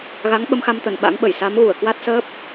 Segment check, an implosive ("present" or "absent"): present